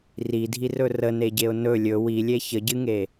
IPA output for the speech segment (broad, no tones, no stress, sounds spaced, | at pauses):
r i dʱ i r ɵ r ə n e ɟ e ʊ̯ n ɵ lʲ ɵ w i lʲ e ç ə ɟ ɨ ŋ e